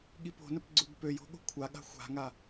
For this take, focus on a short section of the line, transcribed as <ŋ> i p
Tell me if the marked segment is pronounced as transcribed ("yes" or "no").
no